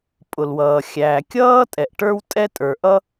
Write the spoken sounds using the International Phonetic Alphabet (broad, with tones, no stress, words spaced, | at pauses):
pʼʊ˩lwʌː˩ xʲæː˩kʲʌː˥tʼɛ˩ʔ ʈə˞˥wtʼɛ˥ tʼə˞˩ʔʌ˥